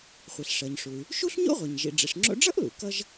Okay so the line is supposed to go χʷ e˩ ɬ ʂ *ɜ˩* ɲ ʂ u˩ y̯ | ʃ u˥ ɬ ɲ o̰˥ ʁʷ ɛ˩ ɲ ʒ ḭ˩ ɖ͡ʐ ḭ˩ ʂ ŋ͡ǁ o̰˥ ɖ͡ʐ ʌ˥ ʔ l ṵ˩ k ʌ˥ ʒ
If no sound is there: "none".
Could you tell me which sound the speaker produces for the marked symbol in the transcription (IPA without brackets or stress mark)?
ɜ˩